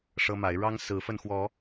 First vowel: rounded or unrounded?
unrounded